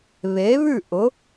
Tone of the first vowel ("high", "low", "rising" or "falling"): rising